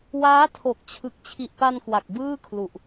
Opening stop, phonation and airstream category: aspirated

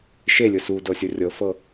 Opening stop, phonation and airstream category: plain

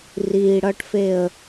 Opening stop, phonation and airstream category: plain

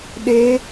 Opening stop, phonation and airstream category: implosive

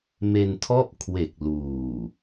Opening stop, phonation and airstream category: aspirated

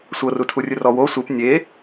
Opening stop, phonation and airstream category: aspirated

